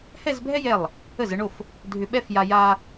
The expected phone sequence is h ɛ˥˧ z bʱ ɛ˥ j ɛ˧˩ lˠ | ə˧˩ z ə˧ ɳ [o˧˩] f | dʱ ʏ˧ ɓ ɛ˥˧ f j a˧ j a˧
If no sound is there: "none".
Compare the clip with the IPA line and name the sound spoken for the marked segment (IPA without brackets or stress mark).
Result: o˧˩